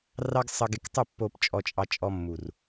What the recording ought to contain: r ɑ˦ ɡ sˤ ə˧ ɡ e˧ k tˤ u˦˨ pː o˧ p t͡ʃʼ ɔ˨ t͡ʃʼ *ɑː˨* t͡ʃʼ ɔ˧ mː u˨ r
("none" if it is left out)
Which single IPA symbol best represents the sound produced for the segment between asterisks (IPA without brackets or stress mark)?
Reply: ɑ˨